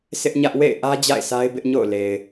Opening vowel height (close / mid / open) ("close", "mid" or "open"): close